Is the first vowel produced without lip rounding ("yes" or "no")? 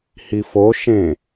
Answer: yes